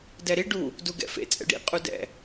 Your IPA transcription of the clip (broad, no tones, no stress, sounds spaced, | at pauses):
d ɛ ɾ i ɖ u | d u ɡ ɛ̰ f ḛ t͡sʼ ɛ̰ ɖ ḭ qʼ u d ɛ̰